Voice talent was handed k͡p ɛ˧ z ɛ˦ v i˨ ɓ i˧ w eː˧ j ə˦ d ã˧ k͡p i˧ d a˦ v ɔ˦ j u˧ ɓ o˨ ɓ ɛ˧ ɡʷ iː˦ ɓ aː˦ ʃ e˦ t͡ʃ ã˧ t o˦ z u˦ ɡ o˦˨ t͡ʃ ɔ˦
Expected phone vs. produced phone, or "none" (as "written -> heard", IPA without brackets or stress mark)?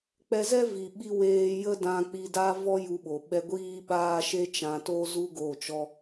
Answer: none